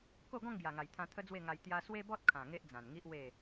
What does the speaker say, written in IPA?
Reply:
ko˥˧ ɡɔ̃˥˧ŋɡja˨˩ŋa˨˩jt̪ʰã˧ t̪ʰə˦d͡zwe˥˧ŋa˧j t̪ja˦ swe˦bɔ˦t̚kʰã˨˩ ŋe˦ʔd͡zã˨˩nŋi˦ʔwe˥˧

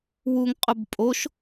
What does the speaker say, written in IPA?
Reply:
wuŋqʼʊb pʼoʃ

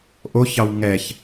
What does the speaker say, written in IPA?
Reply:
ʔoçɑw ŋɛç

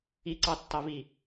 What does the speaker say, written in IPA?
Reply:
iǀɑtːɑvi

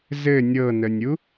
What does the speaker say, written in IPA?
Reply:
zɘ nʲɤnənʲu

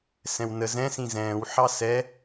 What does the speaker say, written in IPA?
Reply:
sɛ̃wnə zɛ̃sĩ zɛ̃ːwħɑ sɛ

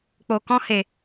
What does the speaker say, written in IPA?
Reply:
k͡po˧kɔ̃˦he˧

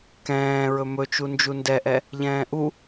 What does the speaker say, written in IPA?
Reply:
kɛ̃ː ɹɵmɵt͡ʃu nd͡ʒundɛʔɛ | ʎɛ̃ːʔu

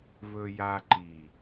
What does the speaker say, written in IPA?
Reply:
vɵ˦ja˦ ǃi˨

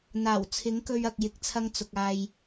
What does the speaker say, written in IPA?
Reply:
n̪aː˨˩w t͡sʰɪ˨˥ŋkɵ˧ɥɐ˨k̚ jɪ˨k̚t͡sʰɐ˧ŋ t͡sʊ˨k̚aː˧j

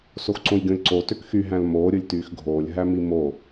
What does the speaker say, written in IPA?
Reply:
soxǀõjɡʲõlʲǀo tøkxy ɦæ̃lmoː ɾʲɯlʲtyːxɡʱoːlʲ ɦæmimo

